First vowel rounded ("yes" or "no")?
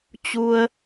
yes